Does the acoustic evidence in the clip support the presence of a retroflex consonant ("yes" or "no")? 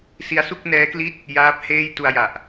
no